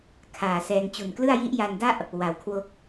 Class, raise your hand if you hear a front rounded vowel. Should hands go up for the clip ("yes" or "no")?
no